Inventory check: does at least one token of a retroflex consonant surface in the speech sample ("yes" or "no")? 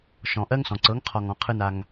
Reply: no